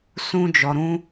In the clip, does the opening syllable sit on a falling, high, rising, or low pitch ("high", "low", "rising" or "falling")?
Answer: high